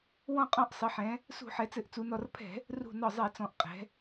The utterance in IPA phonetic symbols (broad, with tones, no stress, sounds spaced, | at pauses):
w ɔ̃˧˩ qʼ ɔ̃˧˩ ʔ sˤ ɘ˩˧ ħ ɛ̃˩˧ | s ṳ˧˩˧ ħ ɛ˩˧ t͡s ɘ˧˩˧ ʔ t͡s u˩˧ n ɔ˧˩ r pʰ ɛ̤˧˩˧ | r ṳ˧˩ n ɒ˧˩ zˤ ɛ˧˩˧ t͡s ɔ̃˩˧ ʔ qʼ ɛ̤˩˧